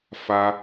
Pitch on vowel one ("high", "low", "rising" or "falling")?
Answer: high